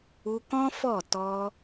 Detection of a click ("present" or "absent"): absent